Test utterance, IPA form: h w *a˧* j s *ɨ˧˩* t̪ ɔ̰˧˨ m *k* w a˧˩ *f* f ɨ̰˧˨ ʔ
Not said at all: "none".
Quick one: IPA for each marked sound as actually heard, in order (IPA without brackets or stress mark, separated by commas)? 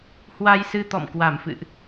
a˧, ɨ˧, k, m